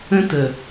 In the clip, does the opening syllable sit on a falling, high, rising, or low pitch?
high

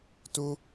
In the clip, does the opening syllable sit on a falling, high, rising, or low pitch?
high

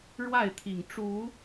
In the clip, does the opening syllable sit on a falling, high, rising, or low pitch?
falling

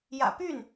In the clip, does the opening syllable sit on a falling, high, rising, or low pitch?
low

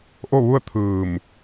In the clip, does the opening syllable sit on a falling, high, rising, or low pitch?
falling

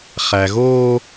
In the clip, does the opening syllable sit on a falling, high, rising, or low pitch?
low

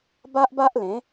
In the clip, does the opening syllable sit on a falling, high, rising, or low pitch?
high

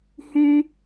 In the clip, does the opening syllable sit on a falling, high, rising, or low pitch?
high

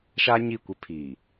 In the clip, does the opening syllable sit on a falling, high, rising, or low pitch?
high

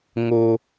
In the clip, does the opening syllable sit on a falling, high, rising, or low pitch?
high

